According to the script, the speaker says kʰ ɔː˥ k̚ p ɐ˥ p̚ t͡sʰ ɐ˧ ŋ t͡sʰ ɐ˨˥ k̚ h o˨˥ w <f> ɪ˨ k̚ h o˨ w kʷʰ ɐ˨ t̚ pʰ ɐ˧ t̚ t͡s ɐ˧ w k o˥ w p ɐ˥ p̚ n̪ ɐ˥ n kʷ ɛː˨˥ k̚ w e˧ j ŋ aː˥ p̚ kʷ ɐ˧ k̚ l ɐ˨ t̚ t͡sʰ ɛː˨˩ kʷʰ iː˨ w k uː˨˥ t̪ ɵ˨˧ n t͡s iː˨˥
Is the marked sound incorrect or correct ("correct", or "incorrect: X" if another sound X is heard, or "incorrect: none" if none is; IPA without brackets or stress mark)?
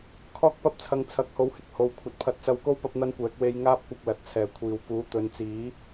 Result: incorrect: h